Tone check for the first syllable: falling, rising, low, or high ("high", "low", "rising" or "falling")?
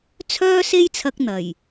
high